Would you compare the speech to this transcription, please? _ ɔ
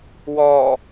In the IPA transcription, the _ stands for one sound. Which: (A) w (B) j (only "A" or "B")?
A